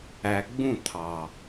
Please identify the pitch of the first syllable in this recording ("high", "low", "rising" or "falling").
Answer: low